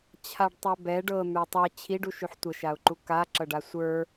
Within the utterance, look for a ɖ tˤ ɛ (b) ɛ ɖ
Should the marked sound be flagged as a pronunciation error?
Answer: no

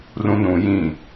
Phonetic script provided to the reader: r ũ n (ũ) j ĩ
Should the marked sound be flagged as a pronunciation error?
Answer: no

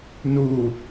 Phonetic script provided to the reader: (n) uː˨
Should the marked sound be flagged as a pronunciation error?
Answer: no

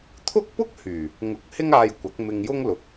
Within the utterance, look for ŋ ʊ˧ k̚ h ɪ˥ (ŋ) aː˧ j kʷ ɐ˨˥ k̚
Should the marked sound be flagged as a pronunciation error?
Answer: no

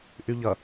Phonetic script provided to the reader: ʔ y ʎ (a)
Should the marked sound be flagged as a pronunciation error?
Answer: yes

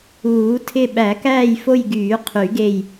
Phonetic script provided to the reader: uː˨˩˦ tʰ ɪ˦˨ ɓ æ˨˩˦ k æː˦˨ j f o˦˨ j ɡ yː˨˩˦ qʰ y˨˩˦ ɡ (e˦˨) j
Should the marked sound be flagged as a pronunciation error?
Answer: no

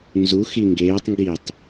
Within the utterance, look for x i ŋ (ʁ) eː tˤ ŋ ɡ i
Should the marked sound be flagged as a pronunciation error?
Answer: yes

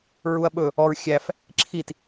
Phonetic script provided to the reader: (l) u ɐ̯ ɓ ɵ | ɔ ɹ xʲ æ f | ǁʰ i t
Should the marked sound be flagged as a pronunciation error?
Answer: yes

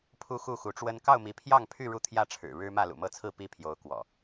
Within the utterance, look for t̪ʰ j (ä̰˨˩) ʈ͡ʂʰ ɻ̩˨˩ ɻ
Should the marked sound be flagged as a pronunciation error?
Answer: yes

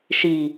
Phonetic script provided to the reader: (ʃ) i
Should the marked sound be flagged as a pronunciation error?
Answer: no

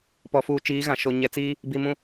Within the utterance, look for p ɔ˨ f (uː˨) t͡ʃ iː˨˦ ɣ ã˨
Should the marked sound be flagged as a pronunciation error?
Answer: no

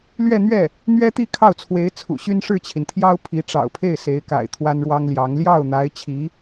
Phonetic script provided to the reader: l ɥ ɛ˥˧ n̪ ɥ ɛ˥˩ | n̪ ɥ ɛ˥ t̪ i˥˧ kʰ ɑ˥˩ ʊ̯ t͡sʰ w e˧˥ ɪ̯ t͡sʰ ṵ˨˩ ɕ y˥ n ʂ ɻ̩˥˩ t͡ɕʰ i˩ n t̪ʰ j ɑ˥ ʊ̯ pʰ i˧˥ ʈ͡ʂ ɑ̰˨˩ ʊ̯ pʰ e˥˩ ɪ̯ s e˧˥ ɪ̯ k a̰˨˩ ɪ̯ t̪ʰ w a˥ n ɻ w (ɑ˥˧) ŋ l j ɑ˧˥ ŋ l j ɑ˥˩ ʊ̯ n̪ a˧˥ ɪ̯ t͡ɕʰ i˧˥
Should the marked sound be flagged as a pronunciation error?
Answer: yes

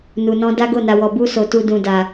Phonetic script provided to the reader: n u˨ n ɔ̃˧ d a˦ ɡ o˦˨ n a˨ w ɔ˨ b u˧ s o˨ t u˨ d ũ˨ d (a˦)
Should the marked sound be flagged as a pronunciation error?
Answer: yes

